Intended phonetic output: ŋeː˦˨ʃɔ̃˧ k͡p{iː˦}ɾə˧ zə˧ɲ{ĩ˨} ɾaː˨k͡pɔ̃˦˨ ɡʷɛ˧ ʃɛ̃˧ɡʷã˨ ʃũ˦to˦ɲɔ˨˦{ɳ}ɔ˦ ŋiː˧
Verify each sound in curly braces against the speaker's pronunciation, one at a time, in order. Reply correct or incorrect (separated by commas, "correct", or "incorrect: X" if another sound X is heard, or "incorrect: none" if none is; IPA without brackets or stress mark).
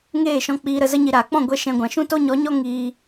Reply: incorrect: iː˧, incorrect: i˨, incorrect: ɲ